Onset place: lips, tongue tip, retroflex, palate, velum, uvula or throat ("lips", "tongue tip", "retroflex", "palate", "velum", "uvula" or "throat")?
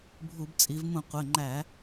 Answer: lips